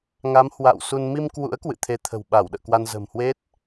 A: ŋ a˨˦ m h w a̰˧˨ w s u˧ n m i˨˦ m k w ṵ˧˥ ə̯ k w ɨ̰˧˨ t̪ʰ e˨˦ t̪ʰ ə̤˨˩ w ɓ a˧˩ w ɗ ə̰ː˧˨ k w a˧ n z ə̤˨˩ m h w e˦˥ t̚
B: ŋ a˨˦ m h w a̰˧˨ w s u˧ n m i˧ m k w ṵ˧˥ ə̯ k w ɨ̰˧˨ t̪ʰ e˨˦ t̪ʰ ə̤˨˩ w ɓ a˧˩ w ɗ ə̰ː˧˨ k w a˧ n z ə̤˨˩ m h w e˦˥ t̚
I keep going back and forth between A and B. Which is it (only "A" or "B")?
B